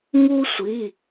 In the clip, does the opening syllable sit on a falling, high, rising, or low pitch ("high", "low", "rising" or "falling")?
high